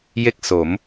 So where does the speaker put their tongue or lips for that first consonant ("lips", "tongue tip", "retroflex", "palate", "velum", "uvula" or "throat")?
palate